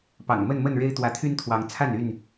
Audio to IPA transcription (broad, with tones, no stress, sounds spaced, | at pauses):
p ɑ̰˨˩ ŋ m ə˥˨ n m ə˥˨ n ɻ e˦ ɪ̯ t̪ w ä˨˦ t̪ʰ y˦ n t̪ʰ w ɑ˨˦ ŋ t͡sʰ a˥˨ n y˥˨ n